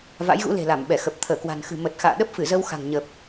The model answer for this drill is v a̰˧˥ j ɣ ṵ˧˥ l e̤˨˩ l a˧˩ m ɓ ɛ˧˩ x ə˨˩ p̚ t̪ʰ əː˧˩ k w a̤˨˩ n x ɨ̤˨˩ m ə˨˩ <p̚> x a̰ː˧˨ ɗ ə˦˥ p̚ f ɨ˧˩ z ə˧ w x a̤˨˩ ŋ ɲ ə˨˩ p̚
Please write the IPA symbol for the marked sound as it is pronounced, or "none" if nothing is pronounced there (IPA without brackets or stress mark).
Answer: t̚